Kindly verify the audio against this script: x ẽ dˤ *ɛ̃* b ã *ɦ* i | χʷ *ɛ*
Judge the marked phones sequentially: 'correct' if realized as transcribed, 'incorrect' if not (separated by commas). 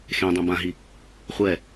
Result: incorrect, correct, correct